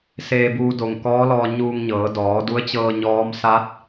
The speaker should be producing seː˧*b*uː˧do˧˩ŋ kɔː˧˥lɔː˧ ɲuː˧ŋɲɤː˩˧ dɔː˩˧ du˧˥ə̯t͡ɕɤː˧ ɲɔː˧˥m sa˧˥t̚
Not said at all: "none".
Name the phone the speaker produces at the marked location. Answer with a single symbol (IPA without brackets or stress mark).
b